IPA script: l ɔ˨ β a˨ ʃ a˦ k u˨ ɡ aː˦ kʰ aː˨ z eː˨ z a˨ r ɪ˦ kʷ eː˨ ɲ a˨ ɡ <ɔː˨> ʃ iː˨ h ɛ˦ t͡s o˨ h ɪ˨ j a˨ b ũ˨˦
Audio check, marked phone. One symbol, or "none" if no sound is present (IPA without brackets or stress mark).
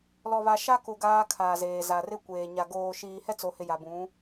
oː˨